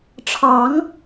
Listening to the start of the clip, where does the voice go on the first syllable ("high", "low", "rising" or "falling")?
rising